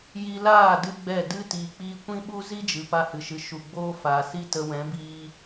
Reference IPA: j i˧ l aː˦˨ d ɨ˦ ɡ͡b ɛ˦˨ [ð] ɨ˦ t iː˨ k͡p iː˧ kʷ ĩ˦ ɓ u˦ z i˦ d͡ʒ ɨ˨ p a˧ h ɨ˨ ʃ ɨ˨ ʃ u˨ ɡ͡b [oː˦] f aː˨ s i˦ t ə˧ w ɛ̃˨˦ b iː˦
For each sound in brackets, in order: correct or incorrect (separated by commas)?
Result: incorrect, correct